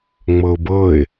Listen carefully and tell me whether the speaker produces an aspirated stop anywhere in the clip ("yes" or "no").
no